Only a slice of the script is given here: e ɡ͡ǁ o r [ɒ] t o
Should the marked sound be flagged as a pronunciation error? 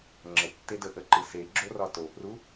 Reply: no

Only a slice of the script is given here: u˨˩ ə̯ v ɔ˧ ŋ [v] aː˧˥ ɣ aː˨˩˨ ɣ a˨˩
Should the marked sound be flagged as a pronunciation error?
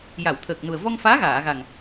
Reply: yes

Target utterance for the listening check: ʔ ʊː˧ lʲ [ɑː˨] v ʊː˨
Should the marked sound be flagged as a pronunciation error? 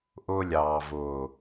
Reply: no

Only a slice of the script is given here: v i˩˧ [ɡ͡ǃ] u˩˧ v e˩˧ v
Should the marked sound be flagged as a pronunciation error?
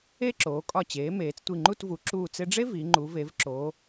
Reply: yes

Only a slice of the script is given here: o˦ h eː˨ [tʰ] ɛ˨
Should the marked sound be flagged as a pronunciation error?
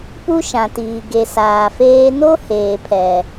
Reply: yes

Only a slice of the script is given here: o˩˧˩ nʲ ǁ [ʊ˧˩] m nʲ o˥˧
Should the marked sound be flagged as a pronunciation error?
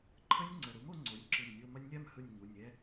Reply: yes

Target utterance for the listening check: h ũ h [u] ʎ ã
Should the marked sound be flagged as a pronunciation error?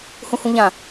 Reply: yes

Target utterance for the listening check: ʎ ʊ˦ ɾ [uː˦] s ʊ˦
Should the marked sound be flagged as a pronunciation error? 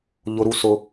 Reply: yes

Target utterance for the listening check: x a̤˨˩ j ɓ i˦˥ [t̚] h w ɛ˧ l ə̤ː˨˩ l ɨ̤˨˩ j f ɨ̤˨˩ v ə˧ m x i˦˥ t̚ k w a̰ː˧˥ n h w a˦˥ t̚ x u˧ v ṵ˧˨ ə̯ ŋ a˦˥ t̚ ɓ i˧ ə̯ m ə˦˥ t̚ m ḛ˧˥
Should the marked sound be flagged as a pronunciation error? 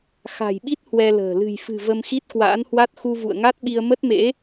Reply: no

